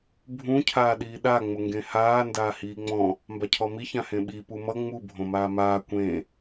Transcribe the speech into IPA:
bʱ ũ cʰ aː ɗ iː ɗ a ŋ͡m ʊ ŋ ɡ ẽ h aː n d aː h iː ŋ͡m ɔ̃ | m b a cʰ ɔ m i ç ã h ẽ ɓ i p u m ʌ ŋ͡m u bʱ õ m aː m aː kʷ ẽ

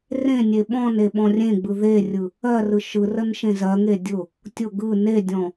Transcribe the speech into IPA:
r ẽ nʲ e ɓ ɔ̃ n e ɓ ɔ̃ rʲ ẽ ɡ͡b ɯ ð e rʲ ɯ | ɜ r ɯ ʃ ɯ r ə n ʃ ẽ z ɜ ŋ e dʲ ʊ | tʲ ʊ ɡ ɯ n e dʲ ɔ̃

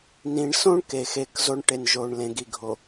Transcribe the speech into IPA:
n ĩ˨ ɳ s õ˦ ɳ k e˨ x e˦˨ k z o˦ ɳ ʈ e˨ n ʒ o˨ ɳ l ẽ˨˦ ɡ i˨ ɡʱ o˨

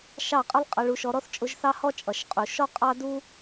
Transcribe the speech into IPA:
ʃ ɑ˦˨ qʼ ə˦ lˠ qʼ ʌ˧ ɭ u˧ ʃ ɔ˧ ɾ ɔ˦ θ t͡ʃʼ ʊ˧ ʒ θ ɑ˦ h ɔ˦ t͡ʃʼ ʌ˨ ʃ qʼ u˨ ʃ ɔ˦ qʼ ɑ˦ d u˦

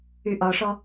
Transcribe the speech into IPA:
y ʔ ɒ ʂ ɔ

